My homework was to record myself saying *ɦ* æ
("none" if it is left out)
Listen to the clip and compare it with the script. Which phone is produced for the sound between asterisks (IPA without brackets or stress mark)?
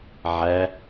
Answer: ʕ